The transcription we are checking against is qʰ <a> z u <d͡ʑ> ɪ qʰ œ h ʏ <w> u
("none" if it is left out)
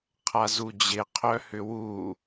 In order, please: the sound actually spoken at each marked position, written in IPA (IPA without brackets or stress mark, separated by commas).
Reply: a, d͡ʑ, w